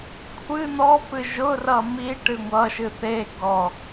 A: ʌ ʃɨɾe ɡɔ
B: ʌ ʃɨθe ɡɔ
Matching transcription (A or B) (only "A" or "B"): B